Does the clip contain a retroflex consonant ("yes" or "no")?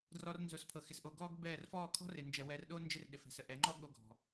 no